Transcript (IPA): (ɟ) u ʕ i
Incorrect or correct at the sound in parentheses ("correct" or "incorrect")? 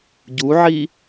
correct